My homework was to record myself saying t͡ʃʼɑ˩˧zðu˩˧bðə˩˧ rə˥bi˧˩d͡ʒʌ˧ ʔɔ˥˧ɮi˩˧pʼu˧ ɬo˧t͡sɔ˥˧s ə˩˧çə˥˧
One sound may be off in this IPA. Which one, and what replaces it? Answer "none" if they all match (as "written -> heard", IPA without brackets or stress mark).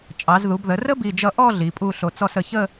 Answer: none